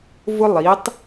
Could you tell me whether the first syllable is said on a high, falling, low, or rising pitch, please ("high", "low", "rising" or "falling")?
high